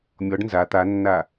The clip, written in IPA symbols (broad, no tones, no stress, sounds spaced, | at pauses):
mʲ ɔ ɖ n z a t̪ a nː a